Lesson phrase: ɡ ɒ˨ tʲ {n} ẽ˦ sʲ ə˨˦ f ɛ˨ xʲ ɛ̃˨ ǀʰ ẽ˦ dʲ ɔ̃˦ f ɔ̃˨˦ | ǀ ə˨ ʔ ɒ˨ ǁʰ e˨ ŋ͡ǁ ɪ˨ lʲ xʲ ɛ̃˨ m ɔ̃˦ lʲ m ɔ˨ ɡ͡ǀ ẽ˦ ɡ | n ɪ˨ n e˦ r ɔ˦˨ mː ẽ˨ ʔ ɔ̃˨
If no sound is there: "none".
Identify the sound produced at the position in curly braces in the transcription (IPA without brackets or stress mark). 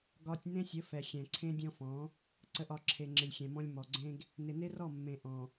n